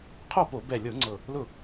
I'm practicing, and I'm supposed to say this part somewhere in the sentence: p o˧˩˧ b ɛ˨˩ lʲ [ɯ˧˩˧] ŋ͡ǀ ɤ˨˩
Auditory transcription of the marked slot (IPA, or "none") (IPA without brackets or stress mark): ɤ˧˩˧